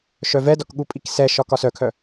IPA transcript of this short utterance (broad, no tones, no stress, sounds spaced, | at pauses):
ʃ œ v ɛ d ɒ k ɠ u pʼ i k s ɛ ʃ ɒ k ɒ s œ kʰ œ